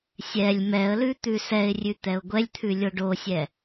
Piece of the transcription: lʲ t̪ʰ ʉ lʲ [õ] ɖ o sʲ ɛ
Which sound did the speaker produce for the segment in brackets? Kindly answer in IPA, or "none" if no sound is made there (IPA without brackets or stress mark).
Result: o